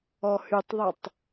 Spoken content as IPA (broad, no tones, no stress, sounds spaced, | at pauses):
ɔ h y tˤ ðˤ ɐ tˤ